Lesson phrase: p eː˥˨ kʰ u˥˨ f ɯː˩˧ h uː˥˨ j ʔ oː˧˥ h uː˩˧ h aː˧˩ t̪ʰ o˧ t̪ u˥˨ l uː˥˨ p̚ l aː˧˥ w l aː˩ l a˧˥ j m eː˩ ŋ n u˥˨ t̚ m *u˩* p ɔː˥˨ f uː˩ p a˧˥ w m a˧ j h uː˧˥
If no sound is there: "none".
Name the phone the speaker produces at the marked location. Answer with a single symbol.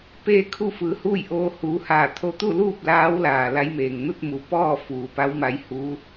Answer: u˩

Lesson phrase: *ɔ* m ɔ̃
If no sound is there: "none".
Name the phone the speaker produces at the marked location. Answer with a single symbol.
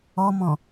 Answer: ɔ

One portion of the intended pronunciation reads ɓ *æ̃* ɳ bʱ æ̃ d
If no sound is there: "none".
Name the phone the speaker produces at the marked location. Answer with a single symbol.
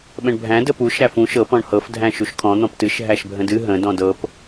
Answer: ə̃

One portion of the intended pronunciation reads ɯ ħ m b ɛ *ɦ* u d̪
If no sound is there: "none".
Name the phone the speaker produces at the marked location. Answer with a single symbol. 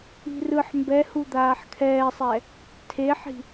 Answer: h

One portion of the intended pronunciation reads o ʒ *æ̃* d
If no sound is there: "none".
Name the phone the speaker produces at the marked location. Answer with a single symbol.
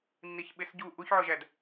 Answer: æ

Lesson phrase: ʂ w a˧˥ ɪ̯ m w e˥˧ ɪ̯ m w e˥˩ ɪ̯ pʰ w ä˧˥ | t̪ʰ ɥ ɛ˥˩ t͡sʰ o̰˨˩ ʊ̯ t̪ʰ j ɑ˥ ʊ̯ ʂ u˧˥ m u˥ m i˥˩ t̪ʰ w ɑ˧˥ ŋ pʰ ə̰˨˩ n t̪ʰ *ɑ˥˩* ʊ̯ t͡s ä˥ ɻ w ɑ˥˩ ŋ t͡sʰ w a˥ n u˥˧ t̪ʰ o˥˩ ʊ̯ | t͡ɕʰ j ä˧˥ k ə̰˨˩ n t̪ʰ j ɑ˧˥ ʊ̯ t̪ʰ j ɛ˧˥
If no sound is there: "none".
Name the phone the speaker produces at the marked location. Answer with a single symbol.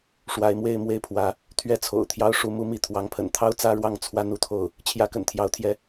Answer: ɑ˥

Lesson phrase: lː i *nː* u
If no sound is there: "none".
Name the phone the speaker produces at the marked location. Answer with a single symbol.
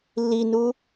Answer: n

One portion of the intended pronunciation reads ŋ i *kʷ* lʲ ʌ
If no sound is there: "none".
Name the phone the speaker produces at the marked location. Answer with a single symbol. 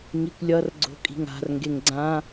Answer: kʷ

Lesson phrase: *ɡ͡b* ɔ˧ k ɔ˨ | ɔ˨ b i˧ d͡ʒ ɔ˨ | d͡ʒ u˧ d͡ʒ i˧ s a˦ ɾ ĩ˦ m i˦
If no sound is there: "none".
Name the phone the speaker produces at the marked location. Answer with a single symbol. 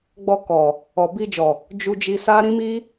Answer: ɡ͡b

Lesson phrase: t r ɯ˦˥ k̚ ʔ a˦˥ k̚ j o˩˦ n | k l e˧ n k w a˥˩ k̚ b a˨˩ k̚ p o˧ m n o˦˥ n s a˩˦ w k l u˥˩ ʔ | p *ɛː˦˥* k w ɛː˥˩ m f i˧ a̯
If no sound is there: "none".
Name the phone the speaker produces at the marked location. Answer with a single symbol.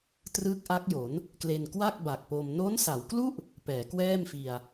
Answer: ɛː˩˦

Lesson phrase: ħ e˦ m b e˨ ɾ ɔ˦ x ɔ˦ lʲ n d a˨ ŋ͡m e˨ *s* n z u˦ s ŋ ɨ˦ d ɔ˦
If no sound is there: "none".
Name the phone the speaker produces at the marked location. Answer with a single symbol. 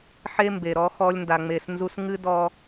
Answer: s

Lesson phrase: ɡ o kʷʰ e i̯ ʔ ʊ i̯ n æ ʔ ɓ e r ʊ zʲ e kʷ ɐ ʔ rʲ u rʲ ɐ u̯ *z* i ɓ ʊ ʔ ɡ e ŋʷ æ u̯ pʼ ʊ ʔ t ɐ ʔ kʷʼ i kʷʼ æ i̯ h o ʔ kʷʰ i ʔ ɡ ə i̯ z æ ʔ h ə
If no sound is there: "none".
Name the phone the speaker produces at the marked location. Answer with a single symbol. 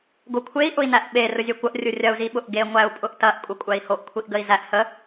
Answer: z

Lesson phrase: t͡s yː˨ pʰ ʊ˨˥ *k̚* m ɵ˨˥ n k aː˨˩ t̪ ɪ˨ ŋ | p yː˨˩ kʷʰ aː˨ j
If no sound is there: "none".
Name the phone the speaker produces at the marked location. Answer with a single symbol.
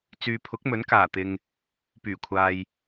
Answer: k̚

